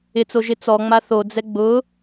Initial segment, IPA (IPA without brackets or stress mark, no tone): ɪ